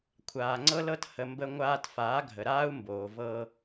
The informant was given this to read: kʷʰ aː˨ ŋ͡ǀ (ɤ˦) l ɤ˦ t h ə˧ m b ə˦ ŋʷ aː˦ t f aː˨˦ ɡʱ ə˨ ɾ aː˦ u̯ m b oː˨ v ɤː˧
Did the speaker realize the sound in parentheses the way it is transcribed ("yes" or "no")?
yes